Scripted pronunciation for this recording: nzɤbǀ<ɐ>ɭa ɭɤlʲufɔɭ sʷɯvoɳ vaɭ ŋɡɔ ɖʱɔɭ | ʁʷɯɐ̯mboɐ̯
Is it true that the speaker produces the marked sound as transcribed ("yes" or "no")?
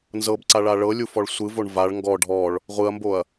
no